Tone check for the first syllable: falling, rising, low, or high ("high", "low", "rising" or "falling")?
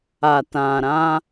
low